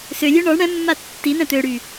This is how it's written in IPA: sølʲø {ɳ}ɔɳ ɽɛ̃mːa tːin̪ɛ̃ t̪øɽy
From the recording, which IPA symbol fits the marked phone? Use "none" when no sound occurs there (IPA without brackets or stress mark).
ɳ